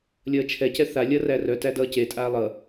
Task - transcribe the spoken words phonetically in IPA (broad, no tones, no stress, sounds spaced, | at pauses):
lʲ ʌː t͡ʃʰ ɛ c ɛ θ a lʲ ʌ r æ r œ t æ d ʌː c e tʼ aː lˠ ʌ